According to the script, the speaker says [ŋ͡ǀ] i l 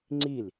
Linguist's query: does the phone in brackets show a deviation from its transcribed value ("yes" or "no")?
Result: no